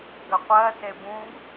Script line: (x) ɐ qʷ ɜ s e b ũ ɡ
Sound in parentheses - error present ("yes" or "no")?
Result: yes